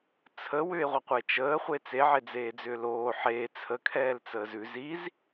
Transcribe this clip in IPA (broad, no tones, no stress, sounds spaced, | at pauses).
t͡sʰ ə w ʏ e̯ ʁʷ ɐ qʷ ə e̯ t͡ʃ əː χʷ e t͡s e ʕ e d͡z eː d͡z ʏː l oː ħ eː t͡sʰ ə kʰ ɛː l t͡s əː z ʉ z i z